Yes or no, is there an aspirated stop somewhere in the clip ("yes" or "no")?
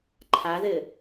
yes